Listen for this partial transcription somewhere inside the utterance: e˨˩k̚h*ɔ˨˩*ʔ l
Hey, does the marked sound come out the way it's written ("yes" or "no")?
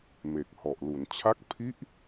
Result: yes